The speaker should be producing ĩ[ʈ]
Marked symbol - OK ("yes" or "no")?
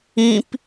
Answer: no